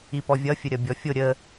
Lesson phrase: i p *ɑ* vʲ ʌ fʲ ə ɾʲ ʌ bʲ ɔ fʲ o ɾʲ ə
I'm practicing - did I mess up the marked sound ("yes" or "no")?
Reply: yes